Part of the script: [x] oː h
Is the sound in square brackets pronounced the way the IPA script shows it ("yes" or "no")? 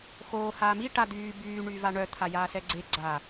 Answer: yes